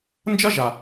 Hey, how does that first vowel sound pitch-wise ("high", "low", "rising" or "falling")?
high